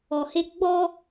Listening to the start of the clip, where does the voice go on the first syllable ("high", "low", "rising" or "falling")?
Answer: low